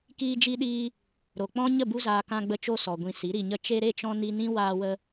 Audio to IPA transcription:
kiː˧d͡ʒi˧ɗiː˧ | ɾo˨k͡pɔ̃˦ ɲə˦˨bu˧zaː˨ kã˧ɡ͡bə˧t͡ʃo˧ sɔ˨ ɡʷĩ˧si˨˦ɾi˧ɲə˦ t͡ʃe˧ɾe˦˨t͡ʃɔ̃˧ ni˧nĩ˦ waː˧wə˧

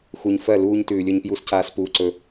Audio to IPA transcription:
xu˨ɲ fɜ˦˨ luː˦ɲtʉː˨lʲɵ˦ɲ pju˦scaː˦s puː˨ǀɵ˨

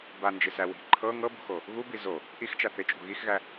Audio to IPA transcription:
band͡ʒɪsæ wi̤ ǃʰɤ ŋɤbṳxo | ɣubi zo | ʔixt͡ʃa θɪt͡ʃʼṳ ɣixɣæ

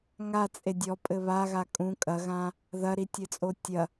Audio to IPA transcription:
ŋat͡sʼe dʲɔpʼɘ βaɣa kʼũ kʼɐɣã | ðɐɾitʲɘt͡sʼo tʲɐ

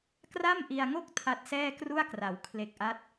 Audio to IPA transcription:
kra˥˩mʔi˧a̯ŋo˥˩k̚ tʰa˦˥t̚sɛː˥˩kru˥˩a̯kra˩˦w kʰle˨˩k̚ʔa˦˥t̚

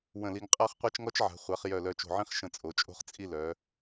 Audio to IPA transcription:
wə̃˧˩li˧ŋqʼa˥χ qʷa˥t͡ʃŋɔ˥t͡ʃʕa̤˩˧χʷa˩˧χ jœ˧˩lœ˧t͡ʃo̤˧˩ʕĩ˥χ ʃə̃˧˩ t͡sʼo˩˧t͡ʃʼo̤˥˧χt͡sʼi˥˧ lœ˩˧

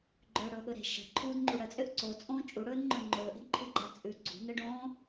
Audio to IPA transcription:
ɡ͡ǃɵːɽɵːɠɵɾe̤ ʃə̤ ǃʰuːdŋ͡ǃuɽət͡sʼøʔ ǀot͡sʼõː t͡ʃʼuɽɵːnŋ͡ǃɵ ŋ͡ǃɵːʔe̤ɡǃʰʉɡ͡ǃa t͡sʼʉ ɡ͡ǀṳnəɖõː

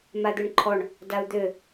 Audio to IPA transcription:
mad̪øɳǃʰɔɳ | dau̯d̪ø

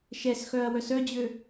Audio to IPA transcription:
ʃɛsxœɐ̯ wœsœd͡ʑø

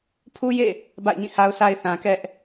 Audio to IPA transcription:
pʰu˦jḛ˦˨ | ba̰˦˨ɪ̯ɲĩ˦˨ha˦ʊ̯sʰa˦ɪ̯ θã˨kɛ˦ʔ

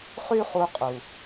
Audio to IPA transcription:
χy˦χu˧qʼu˨

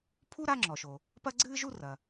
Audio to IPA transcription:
pʰu˥ ɾa˥ŋ͡ǁɔ˩ʃo˩ | pɐ˥ɡ͡ǀɨː˥ʒu˥ rɐ˩

